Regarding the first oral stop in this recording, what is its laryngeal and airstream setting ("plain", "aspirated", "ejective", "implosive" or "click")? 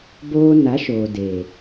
plain